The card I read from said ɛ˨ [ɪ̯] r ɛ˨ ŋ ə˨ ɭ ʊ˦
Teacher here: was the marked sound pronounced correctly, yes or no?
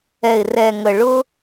yes